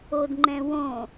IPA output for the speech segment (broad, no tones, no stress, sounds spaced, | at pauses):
o d ŋ͡ǃ ɛ̃ w õ